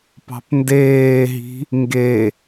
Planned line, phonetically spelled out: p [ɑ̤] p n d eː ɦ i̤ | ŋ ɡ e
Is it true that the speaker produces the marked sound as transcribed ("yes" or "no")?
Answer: yes